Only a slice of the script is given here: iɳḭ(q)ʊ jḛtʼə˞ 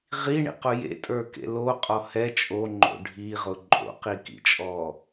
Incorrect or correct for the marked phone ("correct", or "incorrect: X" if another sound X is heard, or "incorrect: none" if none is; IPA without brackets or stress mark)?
correct